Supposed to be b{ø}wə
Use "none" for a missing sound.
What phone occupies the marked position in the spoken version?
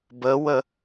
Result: ə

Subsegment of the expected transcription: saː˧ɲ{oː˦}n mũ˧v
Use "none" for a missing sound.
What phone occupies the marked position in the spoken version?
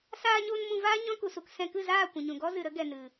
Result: oː˧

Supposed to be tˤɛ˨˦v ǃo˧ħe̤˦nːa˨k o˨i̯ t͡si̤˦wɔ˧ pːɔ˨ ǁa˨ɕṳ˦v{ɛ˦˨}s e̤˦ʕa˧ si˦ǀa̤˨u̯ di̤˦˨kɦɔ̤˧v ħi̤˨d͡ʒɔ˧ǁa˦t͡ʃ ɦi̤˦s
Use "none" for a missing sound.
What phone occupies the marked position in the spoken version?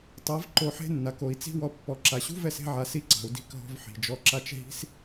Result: ɛ˦˨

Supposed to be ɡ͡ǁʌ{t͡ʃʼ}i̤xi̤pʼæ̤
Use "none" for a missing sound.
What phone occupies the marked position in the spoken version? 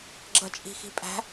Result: t͡ʃʼ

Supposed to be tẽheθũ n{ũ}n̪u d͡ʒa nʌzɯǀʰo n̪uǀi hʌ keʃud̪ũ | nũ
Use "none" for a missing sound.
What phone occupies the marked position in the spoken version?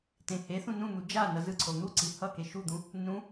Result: ũ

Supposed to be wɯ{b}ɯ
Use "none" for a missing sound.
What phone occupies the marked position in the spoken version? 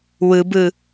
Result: b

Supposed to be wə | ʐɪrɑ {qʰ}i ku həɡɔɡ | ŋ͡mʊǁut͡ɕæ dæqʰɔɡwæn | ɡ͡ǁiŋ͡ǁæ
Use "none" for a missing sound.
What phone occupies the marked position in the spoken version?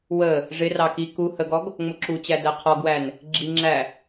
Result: k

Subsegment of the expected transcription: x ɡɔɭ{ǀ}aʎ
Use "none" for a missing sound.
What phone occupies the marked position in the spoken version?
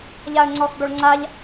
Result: ŋ͡ǀ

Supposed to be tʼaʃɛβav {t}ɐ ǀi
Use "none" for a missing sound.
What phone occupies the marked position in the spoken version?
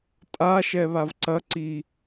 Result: ǀ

